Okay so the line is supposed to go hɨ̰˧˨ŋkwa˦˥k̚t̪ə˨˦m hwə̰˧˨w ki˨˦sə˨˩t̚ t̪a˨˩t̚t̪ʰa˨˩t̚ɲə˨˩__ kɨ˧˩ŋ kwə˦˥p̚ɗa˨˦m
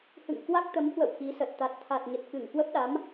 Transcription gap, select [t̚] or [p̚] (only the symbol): t̚